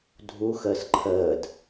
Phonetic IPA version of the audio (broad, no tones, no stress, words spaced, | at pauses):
dʱu xəːsǃʰəːd